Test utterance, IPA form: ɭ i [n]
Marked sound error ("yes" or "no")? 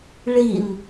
no